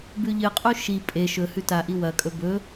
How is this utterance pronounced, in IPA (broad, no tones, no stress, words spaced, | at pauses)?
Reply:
bʉʎɨqʼu ʃi pʼe ʃɵ hʉtaʔi wɐkʼɵ bɵ